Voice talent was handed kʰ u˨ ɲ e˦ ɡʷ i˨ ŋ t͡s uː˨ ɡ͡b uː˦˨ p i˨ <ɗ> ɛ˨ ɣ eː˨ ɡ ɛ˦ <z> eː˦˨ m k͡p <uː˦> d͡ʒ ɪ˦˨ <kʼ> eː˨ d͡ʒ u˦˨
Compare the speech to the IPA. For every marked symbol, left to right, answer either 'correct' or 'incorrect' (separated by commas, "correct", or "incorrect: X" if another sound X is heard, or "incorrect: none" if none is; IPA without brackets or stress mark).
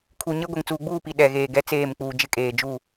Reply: correct, incorrect: t͡s, incorrect: uː˨, correct